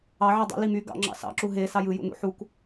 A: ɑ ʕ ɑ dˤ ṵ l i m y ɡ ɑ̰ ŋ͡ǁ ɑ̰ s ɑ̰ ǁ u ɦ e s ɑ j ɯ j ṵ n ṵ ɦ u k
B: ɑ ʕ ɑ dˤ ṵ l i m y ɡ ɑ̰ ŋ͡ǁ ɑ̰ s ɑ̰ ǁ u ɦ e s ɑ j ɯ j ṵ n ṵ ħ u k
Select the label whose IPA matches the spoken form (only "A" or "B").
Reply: B